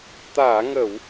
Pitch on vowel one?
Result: low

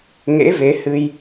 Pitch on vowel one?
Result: rising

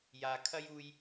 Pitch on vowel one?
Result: low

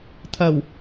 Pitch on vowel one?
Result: low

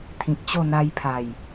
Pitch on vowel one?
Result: low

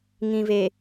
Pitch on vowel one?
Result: low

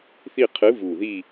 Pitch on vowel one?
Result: falling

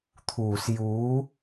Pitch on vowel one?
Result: low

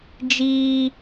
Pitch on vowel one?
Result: high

